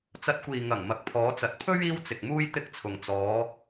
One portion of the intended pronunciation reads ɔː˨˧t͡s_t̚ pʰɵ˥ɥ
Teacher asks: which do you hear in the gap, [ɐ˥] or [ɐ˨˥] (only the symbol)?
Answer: ɐ˨˥